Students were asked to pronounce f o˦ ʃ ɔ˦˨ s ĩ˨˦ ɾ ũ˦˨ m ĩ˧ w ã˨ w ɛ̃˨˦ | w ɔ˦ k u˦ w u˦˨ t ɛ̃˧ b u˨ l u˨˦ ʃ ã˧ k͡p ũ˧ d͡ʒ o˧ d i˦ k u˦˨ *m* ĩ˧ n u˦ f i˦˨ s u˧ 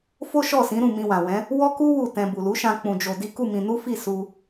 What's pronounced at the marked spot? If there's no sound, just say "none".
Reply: m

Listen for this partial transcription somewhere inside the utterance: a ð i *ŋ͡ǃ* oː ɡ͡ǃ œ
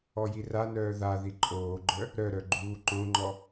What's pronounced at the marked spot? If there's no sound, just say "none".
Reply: ǃʼ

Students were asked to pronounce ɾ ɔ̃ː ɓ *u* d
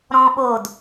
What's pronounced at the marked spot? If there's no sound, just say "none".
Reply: o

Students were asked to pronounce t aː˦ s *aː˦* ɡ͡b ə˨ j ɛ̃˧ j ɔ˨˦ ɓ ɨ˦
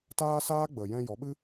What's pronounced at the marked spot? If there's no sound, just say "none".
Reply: aː˦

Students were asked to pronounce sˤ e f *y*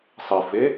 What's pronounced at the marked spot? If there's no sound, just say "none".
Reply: e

